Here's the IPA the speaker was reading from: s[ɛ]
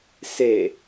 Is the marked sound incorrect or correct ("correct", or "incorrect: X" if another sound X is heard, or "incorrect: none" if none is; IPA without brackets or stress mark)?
incorrect: e